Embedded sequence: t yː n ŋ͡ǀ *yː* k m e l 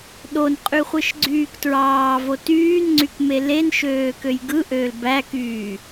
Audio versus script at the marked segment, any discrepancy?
yes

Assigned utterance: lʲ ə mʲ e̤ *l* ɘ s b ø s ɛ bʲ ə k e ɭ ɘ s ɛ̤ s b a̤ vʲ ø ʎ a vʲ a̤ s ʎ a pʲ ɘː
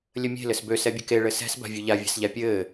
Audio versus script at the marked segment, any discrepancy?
no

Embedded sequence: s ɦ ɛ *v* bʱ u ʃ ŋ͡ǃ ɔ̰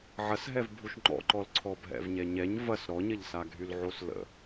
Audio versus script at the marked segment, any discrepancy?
no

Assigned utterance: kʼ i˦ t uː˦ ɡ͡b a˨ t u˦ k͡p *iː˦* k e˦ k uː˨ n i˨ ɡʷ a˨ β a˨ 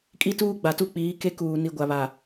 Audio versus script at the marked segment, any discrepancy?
yes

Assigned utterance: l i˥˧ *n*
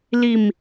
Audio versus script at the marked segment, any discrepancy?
yes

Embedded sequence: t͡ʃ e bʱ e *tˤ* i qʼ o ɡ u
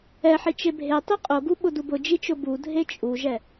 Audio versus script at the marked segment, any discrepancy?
no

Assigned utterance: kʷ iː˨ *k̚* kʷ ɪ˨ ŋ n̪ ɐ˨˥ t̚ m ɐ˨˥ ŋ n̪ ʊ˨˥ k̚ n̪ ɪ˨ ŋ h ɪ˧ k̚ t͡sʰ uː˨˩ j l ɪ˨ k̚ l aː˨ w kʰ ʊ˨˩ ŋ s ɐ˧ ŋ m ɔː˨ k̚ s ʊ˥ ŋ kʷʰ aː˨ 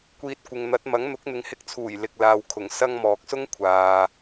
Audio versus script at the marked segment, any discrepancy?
yes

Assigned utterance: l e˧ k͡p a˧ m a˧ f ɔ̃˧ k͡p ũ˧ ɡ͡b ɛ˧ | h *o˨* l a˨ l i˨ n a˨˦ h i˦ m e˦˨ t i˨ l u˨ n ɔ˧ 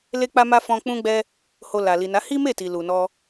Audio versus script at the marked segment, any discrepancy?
no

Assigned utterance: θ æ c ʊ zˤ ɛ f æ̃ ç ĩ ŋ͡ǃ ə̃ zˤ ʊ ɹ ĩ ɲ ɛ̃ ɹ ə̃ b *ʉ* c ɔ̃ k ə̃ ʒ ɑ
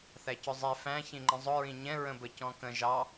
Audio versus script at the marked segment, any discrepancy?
yes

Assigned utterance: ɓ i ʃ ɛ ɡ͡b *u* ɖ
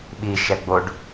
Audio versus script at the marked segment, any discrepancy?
yes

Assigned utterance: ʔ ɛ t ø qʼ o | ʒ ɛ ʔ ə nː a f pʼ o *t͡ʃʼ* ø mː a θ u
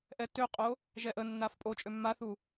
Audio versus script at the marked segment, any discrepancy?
no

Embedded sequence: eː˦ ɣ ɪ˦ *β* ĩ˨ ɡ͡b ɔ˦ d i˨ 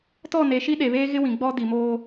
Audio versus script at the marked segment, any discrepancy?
yes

